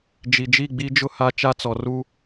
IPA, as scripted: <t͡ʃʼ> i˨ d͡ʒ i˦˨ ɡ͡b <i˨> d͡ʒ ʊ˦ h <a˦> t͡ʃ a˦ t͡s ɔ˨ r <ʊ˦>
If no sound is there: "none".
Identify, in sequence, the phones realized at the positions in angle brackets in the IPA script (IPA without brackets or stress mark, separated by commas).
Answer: d͡ʒ, i˦, a˦, u˦